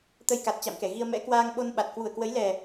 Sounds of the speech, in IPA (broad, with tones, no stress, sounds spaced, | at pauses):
t̪ ə˧ j k a˨˩ t̚ t͡ɕ a̰˧˨ m k ɛ˧˩ ɣ i˧ ə̯ m ɛ̰˧˥ k w aː˧ ŋ ɓ o˧ n ɓ a˨˩ t̚ k w u˧˩ ə̯ k w ə˨˦ j l ɛ˨˩